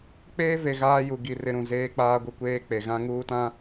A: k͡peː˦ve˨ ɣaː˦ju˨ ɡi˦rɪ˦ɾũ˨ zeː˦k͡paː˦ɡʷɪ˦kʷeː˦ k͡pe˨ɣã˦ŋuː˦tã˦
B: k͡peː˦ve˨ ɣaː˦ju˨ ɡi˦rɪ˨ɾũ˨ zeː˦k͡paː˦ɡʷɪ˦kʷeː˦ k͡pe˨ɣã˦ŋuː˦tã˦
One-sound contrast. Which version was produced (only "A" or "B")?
A